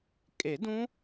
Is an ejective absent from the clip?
no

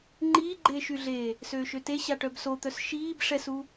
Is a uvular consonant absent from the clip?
yes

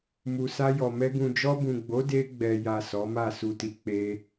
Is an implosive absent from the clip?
yes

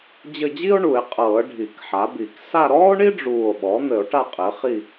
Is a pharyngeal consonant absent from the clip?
no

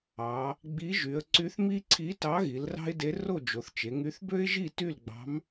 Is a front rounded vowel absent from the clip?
no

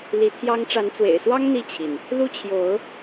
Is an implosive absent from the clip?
yes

